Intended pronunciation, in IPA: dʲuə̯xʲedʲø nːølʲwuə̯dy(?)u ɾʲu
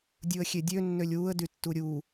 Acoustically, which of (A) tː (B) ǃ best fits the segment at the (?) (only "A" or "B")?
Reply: A